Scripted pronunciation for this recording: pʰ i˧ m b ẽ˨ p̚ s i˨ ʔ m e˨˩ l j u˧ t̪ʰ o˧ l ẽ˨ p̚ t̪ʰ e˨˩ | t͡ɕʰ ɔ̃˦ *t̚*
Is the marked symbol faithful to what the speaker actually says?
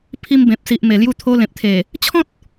yes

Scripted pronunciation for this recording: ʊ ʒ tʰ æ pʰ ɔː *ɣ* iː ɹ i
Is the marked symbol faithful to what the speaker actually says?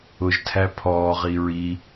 no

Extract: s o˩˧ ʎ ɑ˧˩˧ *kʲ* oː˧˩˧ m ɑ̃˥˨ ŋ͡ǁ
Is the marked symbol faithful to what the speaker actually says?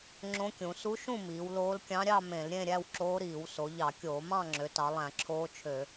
yes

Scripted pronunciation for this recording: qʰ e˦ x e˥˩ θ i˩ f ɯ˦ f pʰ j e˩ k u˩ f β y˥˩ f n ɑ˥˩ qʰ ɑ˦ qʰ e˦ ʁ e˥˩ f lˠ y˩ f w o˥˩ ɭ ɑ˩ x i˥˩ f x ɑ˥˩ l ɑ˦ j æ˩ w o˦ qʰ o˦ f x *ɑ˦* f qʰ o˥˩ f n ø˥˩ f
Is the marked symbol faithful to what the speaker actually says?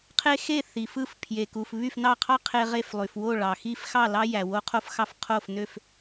yes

